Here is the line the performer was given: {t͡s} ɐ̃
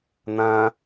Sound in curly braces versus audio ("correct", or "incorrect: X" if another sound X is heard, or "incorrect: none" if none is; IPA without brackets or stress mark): incorrect: n̪